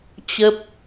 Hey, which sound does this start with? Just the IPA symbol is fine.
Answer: t͡ɕ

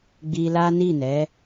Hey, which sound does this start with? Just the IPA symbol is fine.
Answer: ɡ͡b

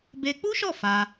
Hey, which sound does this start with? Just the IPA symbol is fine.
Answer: b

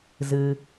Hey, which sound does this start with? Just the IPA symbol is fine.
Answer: z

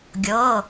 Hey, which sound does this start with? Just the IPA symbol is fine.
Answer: ɡʲ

